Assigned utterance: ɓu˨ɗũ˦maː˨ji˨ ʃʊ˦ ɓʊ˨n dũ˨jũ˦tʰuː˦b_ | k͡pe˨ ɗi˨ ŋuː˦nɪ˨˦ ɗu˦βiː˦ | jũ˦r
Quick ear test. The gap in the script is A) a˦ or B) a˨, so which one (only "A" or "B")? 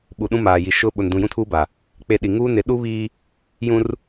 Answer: B